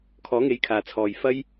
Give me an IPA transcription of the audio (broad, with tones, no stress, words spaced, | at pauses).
kʰɔː˨˥ŋe˨˥jkʰaː˨t͡sʰɔː˨j fɐ˥j